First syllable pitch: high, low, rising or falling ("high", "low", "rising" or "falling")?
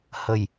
low